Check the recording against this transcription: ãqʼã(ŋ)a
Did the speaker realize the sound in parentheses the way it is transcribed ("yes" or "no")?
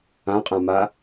no